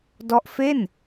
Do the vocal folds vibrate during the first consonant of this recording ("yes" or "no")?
yes